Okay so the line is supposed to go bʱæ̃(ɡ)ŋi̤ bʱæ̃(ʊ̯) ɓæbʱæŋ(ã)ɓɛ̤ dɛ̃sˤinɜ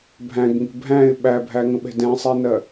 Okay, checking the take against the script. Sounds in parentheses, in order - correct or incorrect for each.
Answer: correct, incorrect: ɪ̯, incorrect: ə̃

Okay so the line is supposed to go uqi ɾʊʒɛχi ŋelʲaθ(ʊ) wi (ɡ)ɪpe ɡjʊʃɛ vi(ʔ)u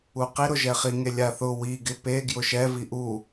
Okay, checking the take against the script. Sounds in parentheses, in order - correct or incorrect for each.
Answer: correct, correct, correct

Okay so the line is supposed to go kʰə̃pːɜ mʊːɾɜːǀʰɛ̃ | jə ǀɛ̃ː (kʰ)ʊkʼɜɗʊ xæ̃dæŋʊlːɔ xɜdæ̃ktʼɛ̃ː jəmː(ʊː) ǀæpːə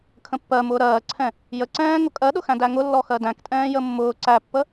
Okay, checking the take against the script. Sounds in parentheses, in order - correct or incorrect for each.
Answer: incorrect: ŋ, correct

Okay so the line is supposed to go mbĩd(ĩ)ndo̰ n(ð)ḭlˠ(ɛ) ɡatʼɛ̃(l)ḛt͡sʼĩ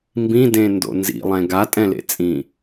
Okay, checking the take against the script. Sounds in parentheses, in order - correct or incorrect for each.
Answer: incorrect: ẽ, incorrect: z, incorrect: ɛ̃, correct

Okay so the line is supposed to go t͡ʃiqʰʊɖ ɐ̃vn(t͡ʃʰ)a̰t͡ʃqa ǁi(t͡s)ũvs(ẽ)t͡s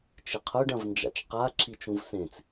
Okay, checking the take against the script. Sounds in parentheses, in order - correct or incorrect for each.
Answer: incorrect: d͡ʒ, incorrect: t͡ʃ, correct

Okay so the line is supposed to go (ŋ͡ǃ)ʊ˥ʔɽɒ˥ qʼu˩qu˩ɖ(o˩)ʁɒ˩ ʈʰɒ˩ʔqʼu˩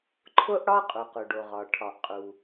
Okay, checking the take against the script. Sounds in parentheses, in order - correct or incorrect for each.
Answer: incorrect: ǃʰ, correct

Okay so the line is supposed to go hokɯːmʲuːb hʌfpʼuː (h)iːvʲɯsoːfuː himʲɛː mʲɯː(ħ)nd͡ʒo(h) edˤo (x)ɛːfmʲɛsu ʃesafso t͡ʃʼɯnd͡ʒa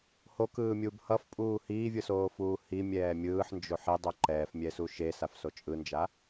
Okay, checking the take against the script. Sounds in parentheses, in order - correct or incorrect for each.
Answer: correct, correct, incorrect: ħ, incorrect: ǃ

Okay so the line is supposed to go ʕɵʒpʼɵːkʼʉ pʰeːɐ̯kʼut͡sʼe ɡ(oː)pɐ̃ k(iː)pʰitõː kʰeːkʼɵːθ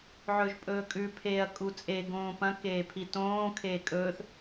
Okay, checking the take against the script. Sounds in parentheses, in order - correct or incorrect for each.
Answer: incorrect: õː, incorrect: eː

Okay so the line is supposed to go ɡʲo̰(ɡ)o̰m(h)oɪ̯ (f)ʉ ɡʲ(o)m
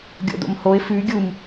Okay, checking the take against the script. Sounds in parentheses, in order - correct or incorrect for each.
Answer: incorrect: d, correct, correct, incorrect: u

